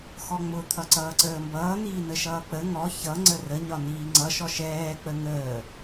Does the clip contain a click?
yes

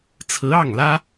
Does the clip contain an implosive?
no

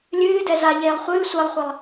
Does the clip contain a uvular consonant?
yes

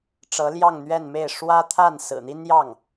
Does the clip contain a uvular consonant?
no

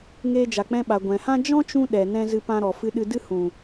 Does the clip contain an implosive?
yes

